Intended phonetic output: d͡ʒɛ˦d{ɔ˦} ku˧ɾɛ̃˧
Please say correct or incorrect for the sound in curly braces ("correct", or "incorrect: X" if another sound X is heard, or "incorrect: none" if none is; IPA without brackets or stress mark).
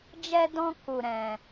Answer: incorrect: ɔ̃˦